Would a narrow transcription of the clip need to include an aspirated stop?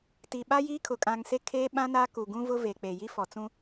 yes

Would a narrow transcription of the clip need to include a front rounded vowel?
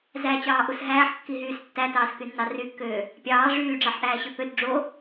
yes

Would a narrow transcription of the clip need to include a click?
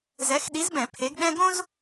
no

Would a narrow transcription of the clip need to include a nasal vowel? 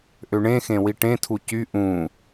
yes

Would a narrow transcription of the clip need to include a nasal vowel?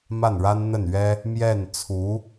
no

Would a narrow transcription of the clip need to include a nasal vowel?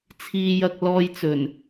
no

